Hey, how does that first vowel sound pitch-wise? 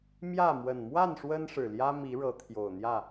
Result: falling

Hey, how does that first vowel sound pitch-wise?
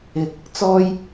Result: rising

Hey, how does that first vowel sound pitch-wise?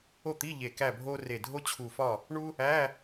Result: falling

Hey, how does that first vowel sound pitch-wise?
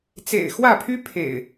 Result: low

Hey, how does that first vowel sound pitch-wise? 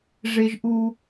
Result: high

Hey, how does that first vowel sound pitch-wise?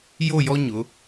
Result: falling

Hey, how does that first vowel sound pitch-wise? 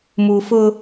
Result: low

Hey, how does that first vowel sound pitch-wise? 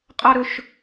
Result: high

